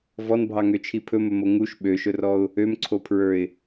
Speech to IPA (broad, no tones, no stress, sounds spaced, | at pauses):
v ɔ n bʱ ɑ ŋ ø t͡ʃʰ i pʰ ɵ m ɵ m o ŋ u ʃ ɓ ø ʃ ɵ r ɔ ʊ̯ | ø m ǀʰ o pʰ ɹ ə˞ ɪ̯